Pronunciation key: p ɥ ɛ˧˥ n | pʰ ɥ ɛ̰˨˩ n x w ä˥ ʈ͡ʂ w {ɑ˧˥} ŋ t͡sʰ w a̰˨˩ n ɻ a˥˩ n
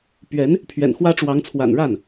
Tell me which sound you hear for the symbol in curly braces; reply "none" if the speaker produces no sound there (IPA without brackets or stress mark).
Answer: ɑ˧˥